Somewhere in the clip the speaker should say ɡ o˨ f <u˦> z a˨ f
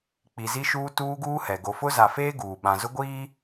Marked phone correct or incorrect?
incorrect